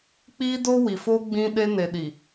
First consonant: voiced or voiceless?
voiceless